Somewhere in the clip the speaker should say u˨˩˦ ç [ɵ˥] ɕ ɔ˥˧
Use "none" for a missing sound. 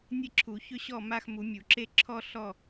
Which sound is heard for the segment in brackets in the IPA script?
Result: ɵ˥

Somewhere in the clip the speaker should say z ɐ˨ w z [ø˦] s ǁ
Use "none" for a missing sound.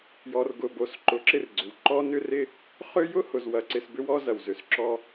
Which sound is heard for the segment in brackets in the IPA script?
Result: ø˨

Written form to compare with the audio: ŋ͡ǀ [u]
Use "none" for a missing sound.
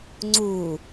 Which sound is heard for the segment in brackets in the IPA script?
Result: u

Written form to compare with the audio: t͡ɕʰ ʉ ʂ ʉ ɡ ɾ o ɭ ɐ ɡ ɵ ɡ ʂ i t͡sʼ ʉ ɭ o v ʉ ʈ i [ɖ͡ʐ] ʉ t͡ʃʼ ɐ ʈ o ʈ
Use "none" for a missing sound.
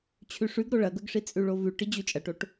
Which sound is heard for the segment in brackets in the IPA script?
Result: d͡ʑ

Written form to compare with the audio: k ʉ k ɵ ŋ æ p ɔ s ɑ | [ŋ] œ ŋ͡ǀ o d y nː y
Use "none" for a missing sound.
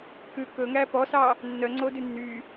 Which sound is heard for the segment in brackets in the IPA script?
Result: nː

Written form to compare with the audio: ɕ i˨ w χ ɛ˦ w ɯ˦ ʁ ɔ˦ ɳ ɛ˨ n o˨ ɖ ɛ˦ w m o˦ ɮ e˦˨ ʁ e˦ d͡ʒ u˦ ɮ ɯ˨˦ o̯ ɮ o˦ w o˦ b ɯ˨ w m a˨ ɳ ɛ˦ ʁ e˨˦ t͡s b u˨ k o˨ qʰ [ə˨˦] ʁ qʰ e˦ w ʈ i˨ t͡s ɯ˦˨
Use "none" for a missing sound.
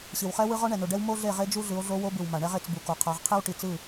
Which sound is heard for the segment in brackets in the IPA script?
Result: a˨˦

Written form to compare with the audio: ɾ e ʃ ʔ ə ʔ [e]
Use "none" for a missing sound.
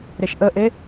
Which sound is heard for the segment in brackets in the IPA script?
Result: e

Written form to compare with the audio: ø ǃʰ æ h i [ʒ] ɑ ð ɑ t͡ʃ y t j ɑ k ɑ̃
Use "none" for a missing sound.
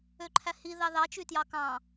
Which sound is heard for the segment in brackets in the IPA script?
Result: ð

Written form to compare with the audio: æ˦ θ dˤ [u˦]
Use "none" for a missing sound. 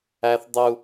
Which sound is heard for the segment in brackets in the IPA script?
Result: u˦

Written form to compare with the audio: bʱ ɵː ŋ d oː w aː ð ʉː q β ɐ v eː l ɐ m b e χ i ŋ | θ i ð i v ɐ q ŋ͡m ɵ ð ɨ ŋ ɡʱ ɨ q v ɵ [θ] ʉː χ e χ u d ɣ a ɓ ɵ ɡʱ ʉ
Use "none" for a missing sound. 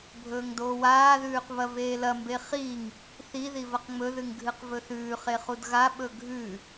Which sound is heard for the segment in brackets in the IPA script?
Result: θ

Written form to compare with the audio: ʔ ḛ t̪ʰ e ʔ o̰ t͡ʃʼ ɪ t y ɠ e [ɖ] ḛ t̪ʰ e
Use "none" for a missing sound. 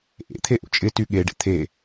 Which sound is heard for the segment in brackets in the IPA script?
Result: ɖ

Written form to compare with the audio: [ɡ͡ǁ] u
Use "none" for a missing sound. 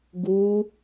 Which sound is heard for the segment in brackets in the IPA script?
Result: ɡ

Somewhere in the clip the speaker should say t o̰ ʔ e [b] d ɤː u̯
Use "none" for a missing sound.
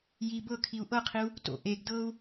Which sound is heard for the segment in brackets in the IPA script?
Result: ɡ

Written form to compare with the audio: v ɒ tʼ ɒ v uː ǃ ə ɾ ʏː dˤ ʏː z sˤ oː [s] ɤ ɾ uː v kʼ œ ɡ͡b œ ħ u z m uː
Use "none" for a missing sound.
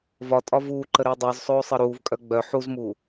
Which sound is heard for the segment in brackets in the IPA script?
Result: sˤ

